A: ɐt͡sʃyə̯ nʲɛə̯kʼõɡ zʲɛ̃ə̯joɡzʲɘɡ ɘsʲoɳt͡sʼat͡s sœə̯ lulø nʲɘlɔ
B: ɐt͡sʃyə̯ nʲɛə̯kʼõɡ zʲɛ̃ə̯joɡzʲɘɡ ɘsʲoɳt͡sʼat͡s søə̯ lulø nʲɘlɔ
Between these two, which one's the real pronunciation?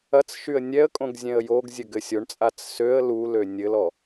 B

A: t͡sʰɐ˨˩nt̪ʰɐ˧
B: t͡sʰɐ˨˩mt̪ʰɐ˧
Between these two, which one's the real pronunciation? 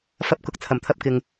B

